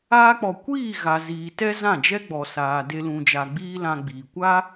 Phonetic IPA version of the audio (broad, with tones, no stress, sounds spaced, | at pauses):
aː˧ k͡p ɔ˨ kʷ iː˦˨ ɣ a˨ z iː˨ t ɛ˦ z ã˦˨ d͡ʒ ɛ˦ ɡ͡b ɔ˨ s aː˨ d e˦ l ũ˧ d͡ʒ a˧ ɡ͡b iː˦ l ã˧ ɡ͡b iː˨ kʷ a˦